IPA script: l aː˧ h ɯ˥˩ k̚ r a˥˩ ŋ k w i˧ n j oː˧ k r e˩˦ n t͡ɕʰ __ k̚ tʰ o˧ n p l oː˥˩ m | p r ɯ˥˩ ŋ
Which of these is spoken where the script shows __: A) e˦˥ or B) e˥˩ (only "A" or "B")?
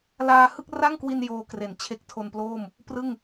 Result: A